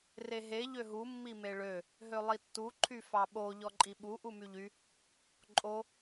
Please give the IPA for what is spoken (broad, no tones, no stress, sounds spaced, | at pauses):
r e ɦ e ʎ ø ɦ u mː i m e ɭ ø | ɦ ø lˠ i tː u ǃʰ y f ɑ ɓ o ʎ ɔ ǃʼ i ɓ u ʔ u m y ʎ y | ǃʼ o